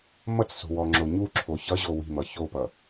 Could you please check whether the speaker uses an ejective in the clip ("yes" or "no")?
no